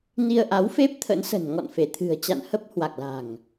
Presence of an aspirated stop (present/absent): present